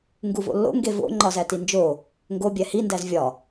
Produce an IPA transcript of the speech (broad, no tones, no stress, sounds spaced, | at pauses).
ŋ ɡ u v o̰ lː o̰ ŋ ɡ e v o̰ ŋ͡ǃ ɒ z æ t i n d͡ʒ o | ŋ ɡ o bʲ æ h i n d æ z vʲ ɒ